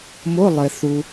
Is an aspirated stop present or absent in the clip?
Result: absent